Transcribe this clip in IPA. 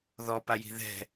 ð ɔ p a j i̤ ð ɛ̤

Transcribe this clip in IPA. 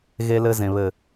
ɣ e˧ l ɘ˧ z ẽ˨ β ɘ˨

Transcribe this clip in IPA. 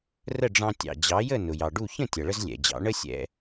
r ə˥˩ ɖ͡ʐ ɑ̃˧ tʲ ɑ̰˩ d͡ʑ ɑ˩˥ j ə˥˩ n ʊ˩ j ɑ˩ ɖ u˥˩ ç ə̃˥˩ tʲ ʌ˩ ɭ ə˧ z lʲ ɛ̰˩ d͡ʑ ɑ̰˩˥ ɳ ə˥ sʲ ɛ̰˧

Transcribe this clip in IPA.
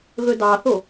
ɣ ɵ d ɑ θ o

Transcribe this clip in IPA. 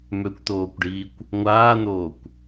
m ø kʷ t̪ oː kʷ ɖ iː kʷ | ŋʷ aː n̪ oː kʷ

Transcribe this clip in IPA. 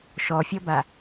ʃ ɔ fʲ ɔ b a

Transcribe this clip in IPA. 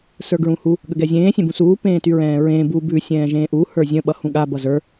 s ə˞ ɡ ɹ ũ h u | ɠ ə ɡ ɛ zʲ ẽː sʲ ɛ̃ b ũ s uː p ẽː t y ɹ ɛ̃ː ɹ ẽː b u b ʉ sʲ ɛ̃ː ʒ ẽː ʔ u h ə˞ zʲ ə̃ ɓ ʌ h ũ ɠ a b ʌ z ə˞

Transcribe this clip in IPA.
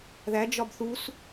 ð æ d͡ʒ ɒ b θ u s

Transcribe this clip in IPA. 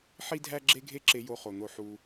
ħ i˦ dʱ æ˦ ɡ͡ǁ e˦ ɡʱ e˦ ǁ e˧ j o˧ χ o˨ n̪ o˧ ħ u˧

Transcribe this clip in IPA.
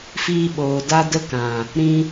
f iː˧ ɓ oː˨ d a˧ d ə˧ k ã˨ | ɾ ĩ˧

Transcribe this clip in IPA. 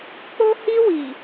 k͡p o˦ h i˦ w i˨

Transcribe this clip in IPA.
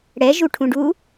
ɽ ɛ ʒ u ʈʰ ũ ɖ u

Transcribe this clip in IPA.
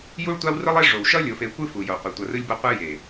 j u˦ ɭ tʷ a˦ w r ɯ˦ lˠ e˦ ʐ o˨ w ʃ ʌ˦ lʲ o˨ f e˨ kʷ ɯ˦ f u˨ j o˨ qʷ e˨ tʷ ʌ˨ r ɯ˦ lʲ b ʌ˦ qʷ ɯ˦ j e˨

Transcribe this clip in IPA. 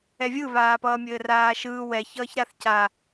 ɛ vʲ ɯ β aː p ʌː mʲ ɘː r aː ʃ ɯː w ɛ ç ʌː ç ɾ a θ c a

